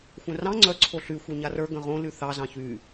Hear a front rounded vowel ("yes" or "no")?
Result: yes